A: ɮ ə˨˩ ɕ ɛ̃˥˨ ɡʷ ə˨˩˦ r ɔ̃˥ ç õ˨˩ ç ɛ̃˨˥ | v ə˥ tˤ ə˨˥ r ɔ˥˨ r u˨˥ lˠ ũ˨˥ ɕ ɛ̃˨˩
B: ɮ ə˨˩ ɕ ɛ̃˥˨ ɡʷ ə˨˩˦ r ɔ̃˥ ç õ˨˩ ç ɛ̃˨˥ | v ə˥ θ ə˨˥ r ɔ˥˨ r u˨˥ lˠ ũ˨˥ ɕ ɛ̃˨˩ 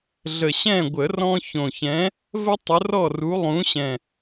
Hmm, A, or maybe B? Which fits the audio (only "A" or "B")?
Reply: A